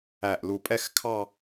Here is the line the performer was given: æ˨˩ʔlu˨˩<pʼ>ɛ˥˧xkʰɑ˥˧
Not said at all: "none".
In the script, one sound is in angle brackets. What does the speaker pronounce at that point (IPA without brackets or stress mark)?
pʼ